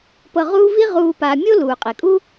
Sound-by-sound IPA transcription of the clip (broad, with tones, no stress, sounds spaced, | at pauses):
p ɤ˧ ʁ uː˥ v i˥ ʁ uː˧ p aː˧ mʲ o˥ l uː˩ qʼ e˩ kʼ u˥